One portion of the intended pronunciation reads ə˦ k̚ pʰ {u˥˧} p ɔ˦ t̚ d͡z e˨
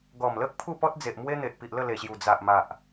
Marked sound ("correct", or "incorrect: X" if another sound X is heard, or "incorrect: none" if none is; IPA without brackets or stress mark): correct